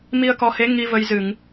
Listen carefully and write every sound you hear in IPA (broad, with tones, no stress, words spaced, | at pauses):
mi˧ə̯kɔ˨˦he˨˦ ŋi˧və˧jzɨ˧˩˨ŋ